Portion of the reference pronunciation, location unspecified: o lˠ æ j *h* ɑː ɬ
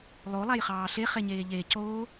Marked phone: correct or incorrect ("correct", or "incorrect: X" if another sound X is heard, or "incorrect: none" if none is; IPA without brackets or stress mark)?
incorrect: χ